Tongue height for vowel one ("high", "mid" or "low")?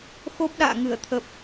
mid